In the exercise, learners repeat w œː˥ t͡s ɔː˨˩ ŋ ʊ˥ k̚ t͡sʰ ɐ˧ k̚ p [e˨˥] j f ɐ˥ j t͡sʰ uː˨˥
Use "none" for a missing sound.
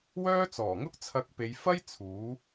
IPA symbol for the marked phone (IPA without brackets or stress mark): e˨˧